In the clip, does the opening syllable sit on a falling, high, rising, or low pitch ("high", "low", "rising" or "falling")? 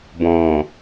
low